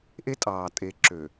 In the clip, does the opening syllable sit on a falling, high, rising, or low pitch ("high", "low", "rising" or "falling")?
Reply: high